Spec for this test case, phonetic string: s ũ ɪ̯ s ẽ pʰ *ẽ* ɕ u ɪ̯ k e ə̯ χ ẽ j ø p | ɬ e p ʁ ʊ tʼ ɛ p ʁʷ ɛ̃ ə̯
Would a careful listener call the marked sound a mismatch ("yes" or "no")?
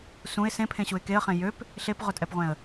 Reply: no